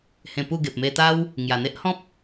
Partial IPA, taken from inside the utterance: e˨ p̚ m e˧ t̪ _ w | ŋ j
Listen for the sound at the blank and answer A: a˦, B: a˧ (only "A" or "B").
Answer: A